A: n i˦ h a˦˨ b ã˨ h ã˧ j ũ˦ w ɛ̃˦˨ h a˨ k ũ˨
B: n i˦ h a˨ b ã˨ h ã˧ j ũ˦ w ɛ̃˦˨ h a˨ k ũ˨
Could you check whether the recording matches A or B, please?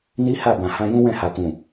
A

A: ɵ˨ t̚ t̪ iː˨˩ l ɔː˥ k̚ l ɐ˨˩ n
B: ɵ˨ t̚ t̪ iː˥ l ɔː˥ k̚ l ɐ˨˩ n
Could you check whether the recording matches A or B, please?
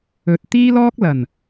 B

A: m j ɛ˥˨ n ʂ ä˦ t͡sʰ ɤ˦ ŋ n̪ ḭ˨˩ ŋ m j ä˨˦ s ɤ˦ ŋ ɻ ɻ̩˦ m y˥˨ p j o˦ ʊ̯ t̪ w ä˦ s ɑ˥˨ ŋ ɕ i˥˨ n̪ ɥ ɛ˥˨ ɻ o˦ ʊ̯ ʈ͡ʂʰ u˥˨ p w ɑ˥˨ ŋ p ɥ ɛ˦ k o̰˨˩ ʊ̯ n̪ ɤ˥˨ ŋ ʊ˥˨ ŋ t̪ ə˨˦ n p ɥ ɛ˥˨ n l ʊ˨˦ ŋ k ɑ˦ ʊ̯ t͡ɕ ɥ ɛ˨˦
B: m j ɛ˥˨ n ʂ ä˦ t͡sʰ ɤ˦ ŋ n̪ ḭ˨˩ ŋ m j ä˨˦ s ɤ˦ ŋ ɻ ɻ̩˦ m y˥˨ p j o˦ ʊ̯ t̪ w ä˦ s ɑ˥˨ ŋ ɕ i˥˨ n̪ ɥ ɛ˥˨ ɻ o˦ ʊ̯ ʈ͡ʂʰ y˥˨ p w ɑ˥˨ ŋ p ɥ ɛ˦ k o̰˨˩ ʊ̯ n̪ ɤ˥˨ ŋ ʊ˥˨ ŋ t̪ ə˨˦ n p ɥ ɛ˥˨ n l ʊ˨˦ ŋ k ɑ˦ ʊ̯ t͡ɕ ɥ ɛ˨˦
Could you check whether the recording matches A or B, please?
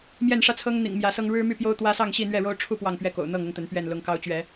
A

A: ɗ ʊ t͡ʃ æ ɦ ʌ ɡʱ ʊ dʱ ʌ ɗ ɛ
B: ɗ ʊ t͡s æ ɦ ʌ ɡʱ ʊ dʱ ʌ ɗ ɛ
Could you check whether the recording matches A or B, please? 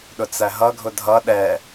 B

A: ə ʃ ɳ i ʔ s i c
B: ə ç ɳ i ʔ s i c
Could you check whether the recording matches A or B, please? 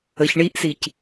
B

